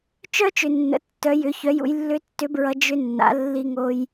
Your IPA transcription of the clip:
t͡ʃ œ˥ t͡ʃ ʏ˩ nː ə̰˩˧ tː œ˩˧ j ʏ˩˧ ç œ˩˧ j ṵ˩˧ j lː ʏ˧˥ tː ʏ˧˥ b ɹ ʌ˧ d͡ʒ ʏ˧ nː a̰˩˧ lː i˧ ŋ o˧ j

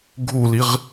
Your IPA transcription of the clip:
ɡʱ u l i ʁ

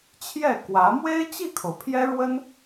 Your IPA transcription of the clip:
t͡ɕʰ j ɛ˥˩ k w ä˧˥ m w e˥ ɪ̯ t͡ɕ i˥˩ kʰ o˩ ʊ̯ pʰ j ɛ˥ ɻ w ə˥ n

